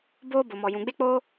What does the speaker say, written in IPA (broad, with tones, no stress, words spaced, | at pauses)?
boː˦ bo˨mɔ˨ jũ˨ɡ͡be˦ k͡poː˦